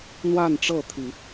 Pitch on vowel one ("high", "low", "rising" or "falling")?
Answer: falling